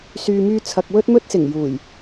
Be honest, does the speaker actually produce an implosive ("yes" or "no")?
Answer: no